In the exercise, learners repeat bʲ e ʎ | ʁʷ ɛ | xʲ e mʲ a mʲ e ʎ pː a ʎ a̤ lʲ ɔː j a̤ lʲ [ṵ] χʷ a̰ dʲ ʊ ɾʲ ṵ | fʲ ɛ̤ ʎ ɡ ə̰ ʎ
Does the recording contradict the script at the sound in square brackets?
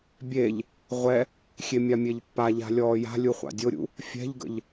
yes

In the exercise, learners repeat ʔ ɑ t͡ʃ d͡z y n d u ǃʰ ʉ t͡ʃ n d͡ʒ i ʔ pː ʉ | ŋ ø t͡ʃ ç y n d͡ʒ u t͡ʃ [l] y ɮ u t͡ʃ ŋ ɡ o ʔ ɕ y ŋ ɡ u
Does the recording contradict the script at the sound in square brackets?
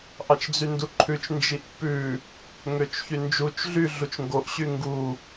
yes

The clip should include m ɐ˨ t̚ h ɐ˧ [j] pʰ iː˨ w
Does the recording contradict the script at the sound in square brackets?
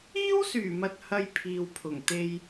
no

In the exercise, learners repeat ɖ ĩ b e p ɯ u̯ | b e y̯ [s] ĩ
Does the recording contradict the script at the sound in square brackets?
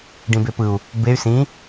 no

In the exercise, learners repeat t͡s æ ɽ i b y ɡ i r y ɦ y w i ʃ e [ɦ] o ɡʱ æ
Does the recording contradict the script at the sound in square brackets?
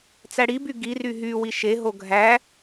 no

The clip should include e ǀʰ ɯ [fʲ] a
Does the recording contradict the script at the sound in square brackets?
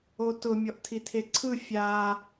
no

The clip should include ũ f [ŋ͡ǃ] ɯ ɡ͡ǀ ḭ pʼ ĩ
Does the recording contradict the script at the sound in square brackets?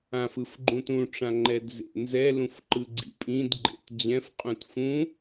yes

